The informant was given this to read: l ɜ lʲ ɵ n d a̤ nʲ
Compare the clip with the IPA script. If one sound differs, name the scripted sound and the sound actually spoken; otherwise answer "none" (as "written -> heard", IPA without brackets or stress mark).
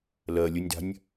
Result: n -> nʲ